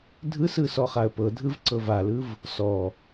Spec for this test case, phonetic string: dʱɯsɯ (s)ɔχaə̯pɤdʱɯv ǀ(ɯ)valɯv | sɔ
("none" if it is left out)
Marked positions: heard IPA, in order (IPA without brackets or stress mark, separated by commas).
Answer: s, ɤ